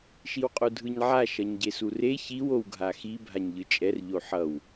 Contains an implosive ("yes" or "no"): no